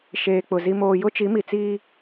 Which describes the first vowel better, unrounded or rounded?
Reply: unrounded